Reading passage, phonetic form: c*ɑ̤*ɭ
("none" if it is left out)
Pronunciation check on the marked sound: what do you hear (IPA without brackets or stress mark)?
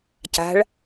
a̤